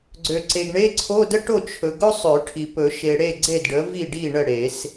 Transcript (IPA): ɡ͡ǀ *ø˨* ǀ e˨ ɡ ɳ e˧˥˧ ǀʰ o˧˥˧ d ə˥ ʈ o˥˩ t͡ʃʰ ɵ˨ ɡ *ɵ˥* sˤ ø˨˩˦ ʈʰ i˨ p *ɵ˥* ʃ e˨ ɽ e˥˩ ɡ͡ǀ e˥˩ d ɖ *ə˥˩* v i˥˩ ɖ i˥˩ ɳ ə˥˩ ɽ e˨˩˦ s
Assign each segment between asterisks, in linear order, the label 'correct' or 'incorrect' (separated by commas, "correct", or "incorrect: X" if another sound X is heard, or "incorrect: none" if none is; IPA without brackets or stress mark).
correct, correct, incorrect: ɵ˨˩˦, incorrect: ə˩˥